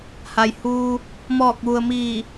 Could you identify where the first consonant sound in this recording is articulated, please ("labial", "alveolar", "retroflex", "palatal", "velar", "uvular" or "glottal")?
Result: glottal